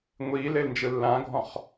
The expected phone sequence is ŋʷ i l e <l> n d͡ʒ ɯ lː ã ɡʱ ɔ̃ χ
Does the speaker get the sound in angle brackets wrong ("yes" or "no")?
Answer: no